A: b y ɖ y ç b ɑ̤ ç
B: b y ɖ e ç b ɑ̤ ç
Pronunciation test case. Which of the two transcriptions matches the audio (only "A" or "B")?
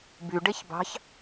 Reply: B